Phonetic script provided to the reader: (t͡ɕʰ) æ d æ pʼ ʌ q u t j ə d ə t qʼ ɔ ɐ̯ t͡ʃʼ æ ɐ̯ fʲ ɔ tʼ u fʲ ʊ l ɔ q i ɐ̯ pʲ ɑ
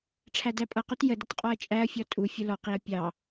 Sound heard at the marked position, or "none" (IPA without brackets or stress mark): ʈ͡ʂʰ